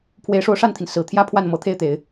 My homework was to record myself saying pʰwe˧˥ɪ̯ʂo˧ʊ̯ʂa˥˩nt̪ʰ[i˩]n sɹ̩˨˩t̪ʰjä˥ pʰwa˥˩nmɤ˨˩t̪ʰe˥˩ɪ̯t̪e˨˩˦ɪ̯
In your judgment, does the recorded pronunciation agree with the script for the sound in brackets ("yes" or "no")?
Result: yes